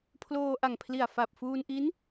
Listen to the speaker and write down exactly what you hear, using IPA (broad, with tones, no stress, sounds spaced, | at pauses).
pʰ l oː˧ ʔ a˨˩ ŋ pʰ l i˨˩ a̯ f a˨˩ p̚ f uː˧ n ʔ i˦˥ n